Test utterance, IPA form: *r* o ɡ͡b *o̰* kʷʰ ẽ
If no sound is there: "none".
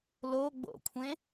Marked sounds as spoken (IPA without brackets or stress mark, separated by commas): l, o̰